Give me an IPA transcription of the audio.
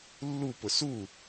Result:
lː u p ʊ s u

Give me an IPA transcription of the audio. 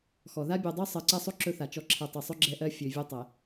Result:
x ɔ˨ ð a˦ bʲ ø˨ dˤ ø˦ sˤ ɜ˨ ǀ ɛ˦ sˤ o˦ ǁ ɵ˦ θ a˨ t͡ʃ ɔ˦ ǁʰ ɛ˨ tˤ ɵ˨ sˤ ɵ˦ ɡ͡ǁ ɛ˦ ʔ ɜ˦ fʲ ø˨ vʲ ø˦ tˤ ɛ˨

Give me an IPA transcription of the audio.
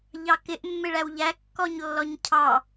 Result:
ʎ ɑ k ɪ ʔ mː ɪ ɭ æ w ʎ æ kː ɔ ɲ lː ɔ ɲ cʰ ɑ

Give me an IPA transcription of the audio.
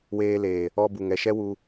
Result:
w eː˧ l eː˨ | ɔ˦ b u˨ ŋ ɛ˨ ʃ ɛ˦ w u˧

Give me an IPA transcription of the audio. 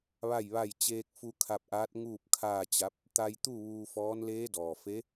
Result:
ʋ a˥˨ j ʋ a˥˨ j t͡ɕ eː˧ k̚ f u˧ kʰ a˧ p̚ ʔ aː˧˥ t̚ ŋ uː˥˨ p̚ kʰ aː˥˨ t͡ɕ a˧˥ p̚ | t̪ a˧ j t̪ u˥˨ ʋ uː˧ f ɔː˧˥ n l eː˧˥ d ɔː˩ f e˧˥

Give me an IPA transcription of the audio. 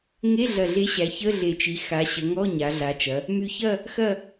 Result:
ŋ e˧˥˧ ɮ ɐ˨˩ ɮ e˨˥ ɕ æ˩˧ ç ə˧˥˧ ɮ e˨˩ t͡ʃ i˩˧ x a˩˧ ɕ ə˩˧ ŋ ɔ˧˥˧ ɲ a˩˧ ɮ a˩˧ t͡ʃ ɐ˩˧ | m y˨˩ ç ɐ˦˨ | x ɐ˦˨

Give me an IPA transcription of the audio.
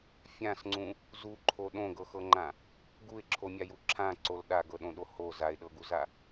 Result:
fʲ ã s ŋ͡ǀ ũ | z u ǃʰ o ɗ õ ɡ ɤ x ɤ ŋ͡ǃ ã | ɡ u ɪ̯ ǁʰ o mʲ a j u ǁʰ ã ǀ o l ɗ a ɡ ɤ ɗ õ ɗ o h o z a ɪ̯ ɗ ɤ ɡ u z a

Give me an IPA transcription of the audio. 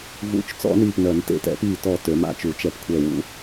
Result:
v ṵ˨˩˦ t͡ʃ t͡s ɔ̰˨˩˦ n iː˧˩ p n œ˨˩˦ n t ḛ˧˩ t ɛ̰˨˩˦ p iː˧˩ t ɔ˧˩ t ø˨˩˦ m a̰˧˩ t͡ʃ u˨˩˦ t͡ʃ ɛ˧˩ p kʷʰ ɛ˧˩ w ṵ˨˩˦

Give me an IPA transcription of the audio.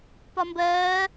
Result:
p ɒ m b ɜː

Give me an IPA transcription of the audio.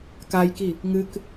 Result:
k a j k i | ŋ ɨ k

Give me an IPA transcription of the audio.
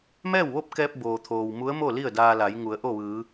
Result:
m ɛː˥˨ w ʋ o˥˨ p̚ k ɛː˧ p̚ b oː˩ t̪ʰ oː˩ w m u˧˥ ə̯ m o˥˨ l i˥˨ ə̯ d aː˧ l a˩˧ j ŋ u˩˧ ə̯ ʔ o˥˨ ʋ ɯː˩˧

